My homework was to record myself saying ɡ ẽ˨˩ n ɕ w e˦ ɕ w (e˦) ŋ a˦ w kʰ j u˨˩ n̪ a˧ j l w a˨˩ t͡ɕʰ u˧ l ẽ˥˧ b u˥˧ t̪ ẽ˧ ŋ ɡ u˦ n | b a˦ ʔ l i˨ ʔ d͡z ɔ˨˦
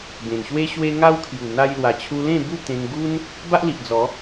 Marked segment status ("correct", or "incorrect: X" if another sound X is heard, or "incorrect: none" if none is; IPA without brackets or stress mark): correct